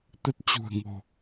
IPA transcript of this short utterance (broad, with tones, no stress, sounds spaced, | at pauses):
t̪ ə˦˥ t̚ t͡ɕ ṳ˨˩ ə̯ ŋ o̤˨˩